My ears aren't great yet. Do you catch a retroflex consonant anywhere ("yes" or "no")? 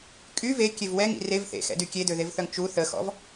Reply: no